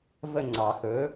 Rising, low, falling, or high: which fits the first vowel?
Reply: falling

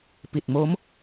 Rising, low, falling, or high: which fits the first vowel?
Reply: low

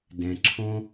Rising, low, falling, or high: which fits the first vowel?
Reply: low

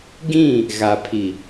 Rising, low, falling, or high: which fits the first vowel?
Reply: falling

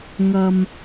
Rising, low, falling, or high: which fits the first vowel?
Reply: low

